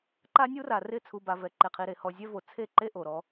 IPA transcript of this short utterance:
ǃ a˦ nʲ u˦ r a˨ r ɪ˦˨ t͡sʰ u˨ b a˨ v ɛ˨ ǃ e˨ qʰ i˨ ɾ e˨ h ɔ˨ zʲ ɛ˦ v o˨ t͡sʰ e˦˨ ǃ e˦ ʔ o˨ ɾ ɔ˦

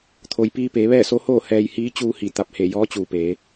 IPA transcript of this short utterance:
t̪ʰ o˩ j p iː˧ p eː˩˧ ʋ ɛː˥˨ s o˧˥ h oː˥˨ h ɛː˧ j h iː˧˥ t͡ɕ uː˧ h i˧˩ t̪ a˧˩ p̚ h e˧˩ j ɔː˧˥ t͡ɕ uː˩ p eː˩˧

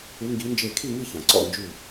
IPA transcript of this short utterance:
ʉ˨˦ ŋ ɡ i˨˦ n d͡ʒ e˧˩ kʰ i˥˨ ŋ i˥˨ ç ã˩ ǀ ɔ̰˧˩ n d͡ʒ ʉ˧˩

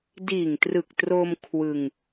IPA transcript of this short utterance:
d iː˨˩ ŋ t r ɯ˨˩ k̚ t r o˧ m kʰ w ɯ˧ ŋ

